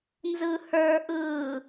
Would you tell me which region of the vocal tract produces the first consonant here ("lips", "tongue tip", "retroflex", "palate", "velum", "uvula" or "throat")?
tongue tip